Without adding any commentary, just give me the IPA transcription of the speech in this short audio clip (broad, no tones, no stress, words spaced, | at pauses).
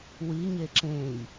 wiɲe ǁẽj